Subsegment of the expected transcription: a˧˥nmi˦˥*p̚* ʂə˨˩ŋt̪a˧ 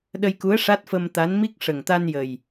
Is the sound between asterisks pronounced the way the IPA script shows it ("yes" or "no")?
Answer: no